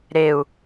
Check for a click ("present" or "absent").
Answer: absent